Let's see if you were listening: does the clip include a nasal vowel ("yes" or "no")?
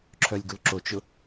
no